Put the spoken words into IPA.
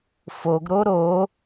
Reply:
f o ɡ ɾ o ɾ o

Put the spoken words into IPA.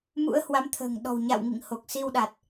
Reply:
m ṵ˧˥ ə̯ h w a˨˦ m t̪ʰ ə̤ː˨˩ ŋ ɗ ɔ̤˨˩ w ɲ a̰˧˨ w ŋ ḭ˧˨ ŋ h o˨˩ k̚ s i˧ w ɗ a˨˩ t̚

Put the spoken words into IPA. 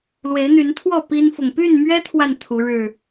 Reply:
l w e˨˦ ɪ̯ n̪ y˨˦ n t̪ʰ w ɔ˥˨ p i˦ n f ʊ˨ ŋ p y˥˨ n m ɥ ɛ˦ t̪ʰ w a˨ n t̪ʰ u˨˦ ɻ ɻ̩˥˨

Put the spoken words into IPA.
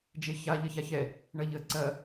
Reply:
d͡ʒ e ç a ʎ ɐ ç a ç ɛ | ɳ ɐ ʎ ə ǀ ɐ

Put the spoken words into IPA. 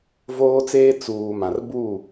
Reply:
v oː˦ t͡s eː˦ t͡s uː˨ m ã˨ r b u˦˨

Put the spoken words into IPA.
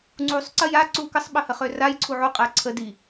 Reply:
ŋ͡ǀ u sˤ ǀ ə j a ǀ u k ə sˤ ɓ ə h ə χ ø r a j ǀʰ u ʕ u qʼ ɛ ǀʰ ə d i

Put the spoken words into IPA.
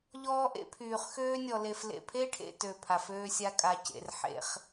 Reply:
ʎ ɔː˦ ʔ ḛ˦ pʰ yː˨ χ x øː˦ nʲ ɔ˨ l e˨ f l ḛ˨ pʰ e˦ ʈʰ ḛ˨ t ø˦˨ pʰ a˨ f øː˦ sʲ a˦ kʼ a˨ c ḛ˨ r ħ ḛ˦ χ

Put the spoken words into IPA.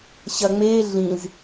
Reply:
ɕ ɐ ŋ͡m e ɮ ĩ z

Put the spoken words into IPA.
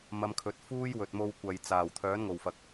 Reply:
m ɐ˧ m kʰ ɵ˨˥ t̚ f uː˥ j w ɵ˨ t̚ m o˧ w kʷ ɐ˨ j t͡s aː˨˩ w t̪ʰ œː˨˥ n ŋ o˨˩ w f ɐ˨ k̚

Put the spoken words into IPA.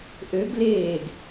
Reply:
ʔ ø ɡ l eː ɡ

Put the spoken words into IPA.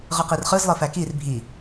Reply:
ʁ ɯ q i r χ ɯ z lˠ ɯ f æ k i r bʱ i

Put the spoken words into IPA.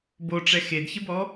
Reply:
b o ʈ͡ʂ ɛ x e d ç ɪ b ɔ

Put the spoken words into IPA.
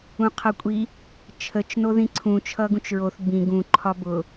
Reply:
ũ qʰ ʌ kʷʼ i | t͡ʃʰ ə t͡ʃ n o ð ĩ ǀʰ ũ t͡ʃʰ ʌ ɡ ũ t͡ʃ ɹ o θ b ĩ ɡ ũ ǃʰ ɒ b ʊ

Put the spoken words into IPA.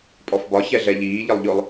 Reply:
pʼ ɔ f b ɒ ç ɛ ɮ ɛ ʎ iː ʎ ə lˠ ʎ ʊ lˠ

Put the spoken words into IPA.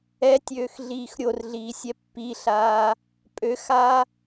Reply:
ɛ tʲ øː x ɮ iː x ɾʲ o r ɮ iː sʲ ɛ pː i ɬ aː | pʼ ø x aː

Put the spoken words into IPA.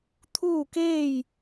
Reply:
t̪ʰ uː˥˨ k eː˥˨ j

